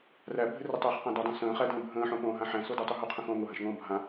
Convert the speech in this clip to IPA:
ræbʱɘrɘ tˤæχqãdɔdˤõ sə̃ːχædə̃ː bʱə̃ːħõpõːɦã ħæ̃sodotˤu ɦoqʰə̃xõːŋ oɦãʃŋõː bʱã

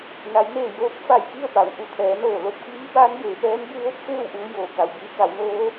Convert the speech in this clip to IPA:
na˩˧jneː˧˩joː˧˥k̚ fa˧˩jki˥˨ə̯pa˩˧w ʔu˩˧t̪ʰɛː˩˧noː˧˩ lo˥˨p̚kiː˧˥ baː˧˥nbeː˩˧pɛː˧˥n bu˧ʋo˥˨p̚ feː˥˨wʔuː˧joː˩ ka˩wbiː˧ka˩˧wnoː˧˥

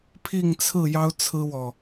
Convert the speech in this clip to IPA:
pʰi˥˨ŋt͡sʰɹ̩˥˨ jɑ˦ʊ̯t͡sʰɹ̩˦wɔ˨

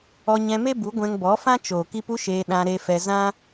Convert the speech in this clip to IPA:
ɔ˧ɲɛ̃˧me˦ bu˨˦ɡʷɛ̃˧ŋbɔ˨˦fã˦ t͡ʃoː˨ki˧p u˦ʃeː˧ ɗã˧ɾe˧fɛ˧ zã˦

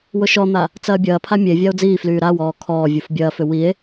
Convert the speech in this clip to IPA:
wʊʃɔn̪a | t͡sɐːbʲɐːpʰa mʲevʲao̯ d͡ziːflyː ɾawɔː kʰɔː vʲufbʲɐːfʏ wie̯

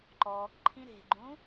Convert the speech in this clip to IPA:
ǃɔːkǃʰĩ ɾe̤ɡ͡ǃũ

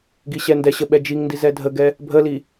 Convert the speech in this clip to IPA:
ɡiɕɛndɛɕə ɓɛd͡ʒiŋndi zɛdʱəɡɛ | bʱəli

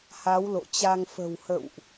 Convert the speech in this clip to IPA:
ha˨˦wlo̰˧˨t͡ɕa˧ŋ fə̤˨˩whə̰˧˨wʔ

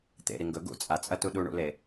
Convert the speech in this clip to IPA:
t̪ḛɾi ŋɡɵ ɡṵ t͡sʼat͡sʼɐtu ɗuɳṵle

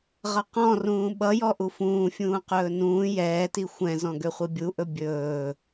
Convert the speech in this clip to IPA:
ʁʌqɔ̃ rũːɓʌjɔ ʔufũːfʲũː qɵːnũː jɛːti xʷɛ̃zɔ̃ ɡøχʷibʲuʔɵ bʲɵː

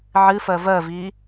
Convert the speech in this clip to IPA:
ʕɨfɜ vɜvi

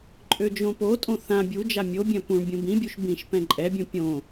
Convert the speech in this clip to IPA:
ǃʼød͡ʒõpotʼõ θã bʲud͡ʒa mʲobʲœ̃ pũɳ bʲũbĩbʲuʃ bĩʃ pɛ̃ǃʼɛbʲũ pʲõ

